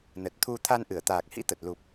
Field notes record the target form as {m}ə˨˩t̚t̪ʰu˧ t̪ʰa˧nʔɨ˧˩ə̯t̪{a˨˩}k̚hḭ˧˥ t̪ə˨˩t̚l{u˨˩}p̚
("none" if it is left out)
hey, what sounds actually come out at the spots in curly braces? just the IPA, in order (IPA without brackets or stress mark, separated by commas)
n, aː˨˩, u˨˩